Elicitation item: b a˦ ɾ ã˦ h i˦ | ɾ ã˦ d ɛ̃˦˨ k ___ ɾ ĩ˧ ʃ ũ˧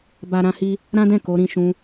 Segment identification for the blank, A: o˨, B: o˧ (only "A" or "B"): B